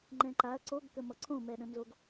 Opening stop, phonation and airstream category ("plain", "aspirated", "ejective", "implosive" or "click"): click